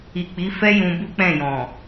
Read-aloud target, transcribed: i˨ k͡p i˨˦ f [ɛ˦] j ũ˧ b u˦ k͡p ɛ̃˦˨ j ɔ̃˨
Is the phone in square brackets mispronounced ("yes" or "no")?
no